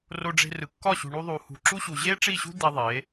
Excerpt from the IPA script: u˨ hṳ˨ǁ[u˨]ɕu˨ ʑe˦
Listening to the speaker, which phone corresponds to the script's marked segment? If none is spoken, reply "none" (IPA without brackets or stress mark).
u˦